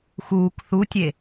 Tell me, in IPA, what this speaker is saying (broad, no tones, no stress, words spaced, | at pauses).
xuːk θutʲe